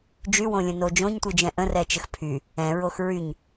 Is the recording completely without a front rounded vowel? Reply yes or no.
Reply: no